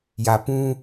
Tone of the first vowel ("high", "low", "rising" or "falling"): low